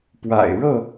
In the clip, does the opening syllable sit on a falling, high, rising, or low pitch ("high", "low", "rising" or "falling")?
low